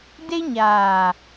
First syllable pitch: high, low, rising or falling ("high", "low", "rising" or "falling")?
high